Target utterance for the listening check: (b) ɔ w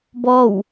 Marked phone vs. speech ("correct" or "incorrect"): correct